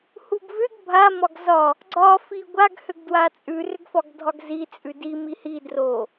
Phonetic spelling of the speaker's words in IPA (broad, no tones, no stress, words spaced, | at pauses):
huɡvʏɡ bʱa mɒɡzɒ | ɡ͡ǀɒ fiɡʷaɡ hʏɡdwat͡sʼʉ rʏɡfɒɡdʱɒɡzi t͡sʼʉdi mihi dro